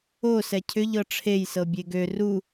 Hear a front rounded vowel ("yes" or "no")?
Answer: yes